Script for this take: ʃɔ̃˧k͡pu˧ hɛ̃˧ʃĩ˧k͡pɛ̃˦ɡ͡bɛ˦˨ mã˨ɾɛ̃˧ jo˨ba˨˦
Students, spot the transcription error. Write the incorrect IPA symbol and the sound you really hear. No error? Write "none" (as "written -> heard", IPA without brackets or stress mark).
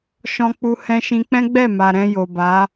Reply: ã˨ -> a˨